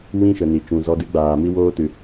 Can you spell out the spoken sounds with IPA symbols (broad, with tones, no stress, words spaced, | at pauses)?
wĩ˦ʃə˨ni˨ t͡ʃũ˨zɔ˧dɨ˦ɡ͡baː˨ mi˦woː˦tɨ˨